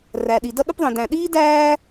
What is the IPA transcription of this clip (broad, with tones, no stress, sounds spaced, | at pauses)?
r æ˩ ɗ i˩ d ʌ˥ ɗ ʊ˥ p ðˤ ĩ˩ d æ̃˨ ɗ iː˥ d æː˦